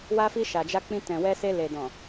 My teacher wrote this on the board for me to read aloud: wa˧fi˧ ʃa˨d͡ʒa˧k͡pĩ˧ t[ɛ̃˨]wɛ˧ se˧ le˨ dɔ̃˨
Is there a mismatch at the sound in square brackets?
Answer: no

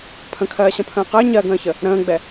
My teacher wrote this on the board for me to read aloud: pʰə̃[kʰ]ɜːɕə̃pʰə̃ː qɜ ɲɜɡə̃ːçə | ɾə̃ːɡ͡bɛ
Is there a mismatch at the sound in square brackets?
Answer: no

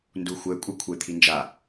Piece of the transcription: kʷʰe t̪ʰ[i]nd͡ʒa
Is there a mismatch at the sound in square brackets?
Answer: no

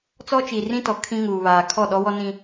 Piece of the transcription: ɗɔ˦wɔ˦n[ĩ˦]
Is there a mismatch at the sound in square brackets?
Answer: no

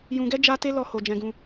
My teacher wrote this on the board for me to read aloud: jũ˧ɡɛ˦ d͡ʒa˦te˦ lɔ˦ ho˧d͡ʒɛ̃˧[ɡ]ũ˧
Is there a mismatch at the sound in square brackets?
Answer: no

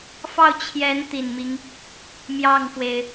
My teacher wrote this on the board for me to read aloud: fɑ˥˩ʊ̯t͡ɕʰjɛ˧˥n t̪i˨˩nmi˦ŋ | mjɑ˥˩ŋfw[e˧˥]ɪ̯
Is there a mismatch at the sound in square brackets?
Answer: yes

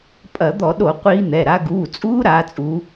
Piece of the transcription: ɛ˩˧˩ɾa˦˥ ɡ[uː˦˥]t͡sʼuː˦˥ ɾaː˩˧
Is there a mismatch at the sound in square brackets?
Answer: yes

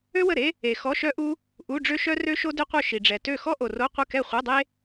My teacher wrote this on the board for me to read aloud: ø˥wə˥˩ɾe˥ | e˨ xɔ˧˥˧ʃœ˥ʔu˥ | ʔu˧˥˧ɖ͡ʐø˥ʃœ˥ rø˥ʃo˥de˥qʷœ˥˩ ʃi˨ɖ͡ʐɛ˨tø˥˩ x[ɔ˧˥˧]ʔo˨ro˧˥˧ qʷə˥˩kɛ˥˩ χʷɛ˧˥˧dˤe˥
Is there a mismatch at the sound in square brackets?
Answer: yes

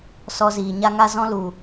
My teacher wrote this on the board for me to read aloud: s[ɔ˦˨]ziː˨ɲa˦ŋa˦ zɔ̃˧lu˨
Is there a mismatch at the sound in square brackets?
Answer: yes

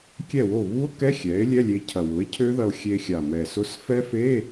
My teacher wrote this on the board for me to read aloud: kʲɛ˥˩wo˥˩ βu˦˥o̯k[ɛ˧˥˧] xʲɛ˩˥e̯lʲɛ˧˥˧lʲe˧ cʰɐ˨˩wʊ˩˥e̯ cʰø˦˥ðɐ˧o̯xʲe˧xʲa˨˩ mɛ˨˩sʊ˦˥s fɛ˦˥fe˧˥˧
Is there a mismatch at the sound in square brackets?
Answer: no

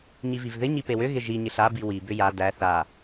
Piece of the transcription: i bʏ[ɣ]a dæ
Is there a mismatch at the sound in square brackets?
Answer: yes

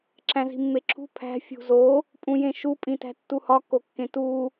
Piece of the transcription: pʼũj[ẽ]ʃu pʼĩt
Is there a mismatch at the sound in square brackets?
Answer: no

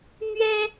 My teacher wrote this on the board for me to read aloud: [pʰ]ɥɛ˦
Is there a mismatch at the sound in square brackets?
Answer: yes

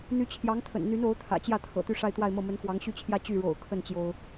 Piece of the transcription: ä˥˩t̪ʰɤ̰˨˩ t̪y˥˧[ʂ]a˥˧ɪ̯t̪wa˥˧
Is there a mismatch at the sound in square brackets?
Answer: no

